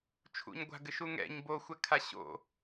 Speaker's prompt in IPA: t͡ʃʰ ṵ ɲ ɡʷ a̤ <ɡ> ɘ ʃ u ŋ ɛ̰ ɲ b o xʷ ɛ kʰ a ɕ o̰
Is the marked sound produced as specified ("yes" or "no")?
yes